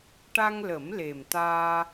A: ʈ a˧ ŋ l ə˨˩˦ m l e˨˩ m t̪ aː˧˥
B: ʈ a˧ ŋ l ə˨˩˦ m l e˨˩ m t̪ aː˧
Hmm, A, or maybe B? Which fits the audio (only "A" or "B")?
B